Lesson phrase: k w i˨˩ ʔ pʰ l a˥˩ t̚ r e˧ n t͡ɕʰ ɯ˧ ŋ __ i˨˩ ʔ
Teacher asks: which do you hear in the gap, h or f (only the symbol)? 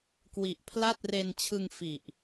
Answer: f